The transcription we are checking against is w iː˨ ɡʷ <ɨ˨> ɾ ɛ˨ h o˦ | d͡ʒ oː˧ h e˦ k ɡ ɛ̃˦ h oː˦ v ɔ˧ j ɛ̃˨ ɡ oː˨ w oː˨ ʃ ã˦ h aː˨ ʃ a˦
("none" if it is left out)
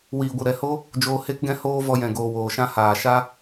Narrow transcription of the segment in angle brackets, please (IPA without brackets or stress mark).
ɨ˨